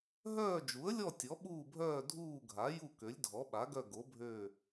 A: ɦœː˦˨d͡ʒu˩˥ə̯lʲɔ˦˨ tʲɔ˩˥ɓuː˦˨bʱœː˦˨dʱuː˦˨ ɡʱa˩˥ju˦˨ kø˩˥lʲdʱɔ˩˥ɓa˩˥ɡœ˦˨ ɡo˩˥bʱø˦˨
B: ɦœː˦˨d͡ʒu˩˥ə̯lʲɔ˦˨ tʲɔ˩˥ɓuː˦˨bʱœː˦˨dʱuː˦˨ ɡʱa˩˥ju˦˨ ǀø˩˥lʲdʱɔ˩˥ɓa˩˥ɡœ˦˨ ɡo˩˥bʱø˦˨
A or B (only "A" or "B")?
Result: A